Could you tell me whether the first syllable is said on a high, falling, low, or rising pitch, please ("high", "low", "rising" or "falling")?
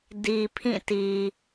low